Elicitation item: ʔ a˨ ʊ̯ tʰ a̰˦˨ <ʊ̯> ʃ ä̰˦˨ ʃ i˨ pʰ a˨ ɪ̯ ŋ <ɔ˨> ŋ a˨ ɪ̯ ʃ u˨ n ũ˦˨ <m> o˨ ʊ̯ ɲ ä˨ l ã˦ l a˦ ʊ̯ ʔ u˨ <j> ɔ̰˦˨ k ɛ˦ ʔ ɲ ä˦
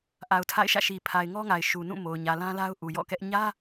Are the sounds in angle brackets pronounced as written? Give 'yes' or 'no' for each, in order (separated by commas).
no, no, yes, yes